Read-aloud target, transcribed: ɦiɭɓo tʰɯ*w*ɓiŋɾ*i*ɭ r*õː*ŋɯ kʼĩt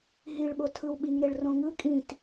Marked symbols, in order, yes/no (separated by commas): yes, no, no